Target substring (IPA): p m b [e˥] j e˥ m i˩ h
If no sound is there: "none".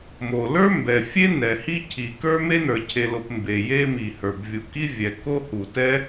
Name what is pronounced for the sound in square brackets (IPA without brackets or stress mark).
e˩